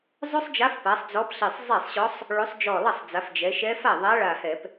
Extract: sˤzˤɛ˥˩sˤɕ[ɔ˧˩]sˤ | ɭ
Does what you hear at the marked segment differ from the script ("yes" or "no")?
yes